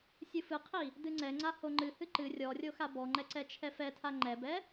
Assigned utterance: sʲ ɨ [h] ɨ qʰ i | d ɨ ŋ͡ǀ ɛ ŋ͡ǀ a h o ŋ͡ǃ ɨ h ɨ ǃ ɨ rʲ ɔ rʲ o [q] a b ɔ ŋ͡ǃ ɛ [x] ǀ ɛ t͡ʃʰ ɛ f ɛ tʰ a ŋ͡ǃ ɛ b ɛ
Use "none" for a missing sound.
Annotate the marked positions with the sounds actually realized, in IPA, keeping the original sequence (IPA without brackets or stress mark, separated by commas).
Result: f, x, none